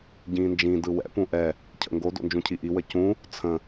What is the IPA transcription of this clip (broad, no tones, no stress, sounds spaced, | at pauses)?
ɟ ĩː n d͡ʒ ĩ d ɯ w ɛ̰ p ũ ʔ ɛ | cʰ ə̰ ŋ ɡ o d o̰ n d͡ʒ ũ cʰ i ʔ i w ə c ũ | t͡sʰ ə̃